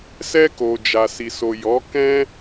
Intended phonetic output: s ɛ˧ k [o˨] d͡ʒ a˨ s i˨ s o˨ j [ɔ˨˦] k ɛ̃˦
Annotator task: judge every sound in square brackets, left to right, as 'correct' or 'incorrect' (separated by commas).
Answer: correct, correct